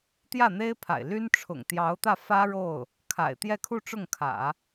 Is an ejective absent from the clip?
yes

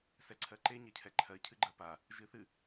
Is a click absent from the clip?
no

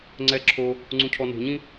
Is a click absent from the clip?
no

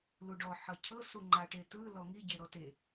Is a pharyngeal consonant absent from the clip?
no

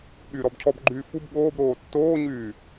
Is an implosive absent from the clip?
no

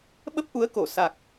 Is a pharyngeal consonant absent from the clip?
yes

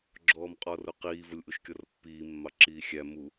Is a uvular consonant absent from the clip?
no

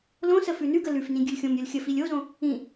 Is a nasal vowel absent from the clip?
no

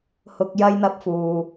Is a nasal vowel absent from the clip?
yes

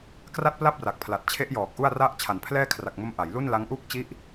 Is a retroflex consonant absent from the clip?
yes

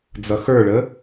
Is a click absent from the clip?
yes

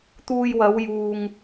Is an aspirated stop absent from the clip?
yes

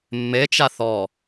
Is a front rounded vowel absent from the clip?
yes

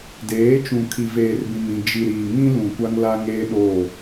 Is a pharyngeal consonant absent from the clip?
yes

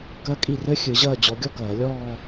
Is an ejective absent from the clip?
no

